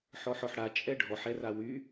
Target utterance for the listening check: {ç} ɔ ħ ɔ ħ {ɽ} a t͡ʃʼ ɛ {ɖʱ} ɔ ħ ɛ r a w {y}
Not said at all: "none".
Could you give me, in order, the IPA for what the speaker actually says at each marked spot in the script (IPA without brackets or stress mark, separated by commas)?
ħ, ɽ, ɖʱ, y